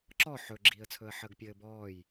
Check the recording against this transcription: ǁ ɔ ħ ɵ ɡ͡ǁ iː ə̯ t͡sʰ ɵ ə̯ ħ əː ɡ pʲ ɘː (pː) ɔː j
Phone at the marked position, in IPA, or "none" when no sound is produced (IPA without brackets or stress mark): b